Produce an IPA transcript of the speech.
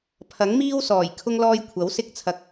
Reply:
pʰɐ˨˥ŋmiː˥wsɔː˨˩j kʰʊ˥ŋlɔː˥j kʷʰɐ˨˥wsɪ˥k̚ t͡sʰɐ˧k̚

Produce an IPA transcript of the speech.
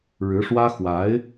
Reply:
ɻɻ̩˧˥ʂwä˥ xwa˧˥ɪ̯

